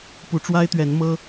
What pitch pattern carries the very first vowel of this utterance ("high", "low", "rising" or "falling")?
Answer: rising